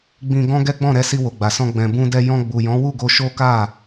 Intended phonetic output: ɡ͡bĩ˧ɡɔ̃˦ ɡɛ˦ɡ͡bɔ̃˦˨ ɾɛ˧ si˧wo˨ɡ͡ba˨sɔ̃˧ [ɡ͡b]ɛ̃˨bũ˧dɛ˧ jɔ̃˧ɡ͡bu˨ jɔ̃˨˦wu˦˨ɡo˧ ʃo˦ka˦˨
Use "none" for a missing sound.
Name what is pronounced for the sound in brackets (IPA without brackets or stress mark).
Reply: ɡ͡b